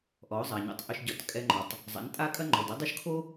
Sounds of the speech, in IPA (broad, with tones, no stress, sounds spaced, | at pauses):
ʔ ɔ˩˥ ʊ̯ zˤ a˩ ɲ o̰˧ tˤ ʔ ʏ˧ ʃ ɟ ɔ˩˥ t kʼ ɛ˧ ŋ͡ǃ ɔ˩ tˤ | zˤ a̰˩˥ n tʼ a˥ kʼ ɐ˥ ŋ͡ǃ ɔ˩ d ɐ˥ dˤ ʉ˥ ʃ kʰ o˥